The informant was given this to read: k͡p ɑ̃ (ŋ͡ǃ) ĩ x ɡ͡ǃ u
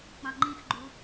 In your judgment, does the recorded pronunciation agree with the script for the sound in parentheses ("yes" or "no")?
yes